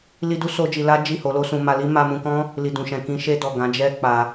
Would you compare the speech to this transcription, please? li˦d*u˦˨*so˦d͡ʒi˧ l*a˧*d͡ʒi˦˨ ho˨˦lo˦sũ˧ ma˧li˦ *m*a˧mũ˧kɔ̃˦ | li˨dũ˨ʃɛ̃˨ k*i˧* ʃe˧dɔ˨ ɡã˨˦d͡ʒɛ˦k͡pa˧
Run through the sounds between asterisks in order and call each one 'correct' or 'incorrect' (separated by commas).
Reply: incorrect, incorrect, correct, incorrect